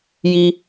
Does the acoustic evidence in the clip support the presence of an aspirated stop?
no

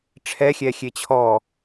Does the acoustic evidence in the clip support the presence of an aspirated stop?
yes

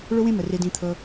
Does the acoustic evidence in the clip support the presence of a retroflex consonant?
yes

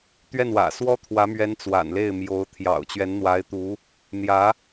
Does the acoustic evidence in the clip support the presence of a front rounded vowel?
no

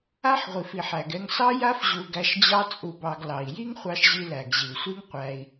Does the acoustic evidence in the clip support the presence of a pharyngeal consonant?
yes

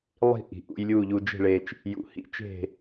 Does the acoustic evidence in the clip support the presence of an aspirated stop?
no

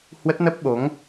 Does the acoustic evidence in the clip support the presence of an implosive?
yes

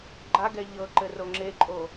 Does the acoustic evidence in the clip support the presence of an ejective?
yes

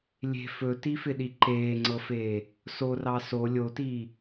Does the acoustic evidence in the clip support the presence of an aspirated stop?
no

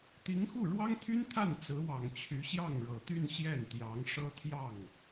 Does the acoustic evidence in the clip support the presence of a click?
no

